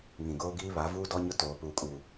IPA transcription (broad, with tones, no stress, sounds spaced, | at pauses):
ŋ ĩ˨ ɡ oː˦ ɡ iː˦ β a˨˦ v uː˦ d ɔ˦ ɲ ʊ˦ t oː˨ p uː˨ kʼ uː˨